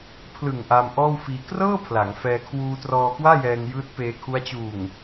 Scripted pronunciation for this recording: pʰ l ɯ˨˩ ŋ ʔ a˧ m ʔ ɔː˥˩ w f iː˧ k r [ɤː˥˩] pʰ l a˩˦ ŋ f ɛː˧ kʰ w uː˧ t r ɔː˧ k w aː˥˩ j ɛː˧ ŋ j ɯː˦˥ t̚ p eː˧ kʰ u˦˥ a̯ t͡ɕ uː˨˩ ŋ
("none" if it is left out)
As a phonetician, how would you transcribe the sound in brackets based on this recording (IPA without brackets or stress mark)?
ɤː˥˩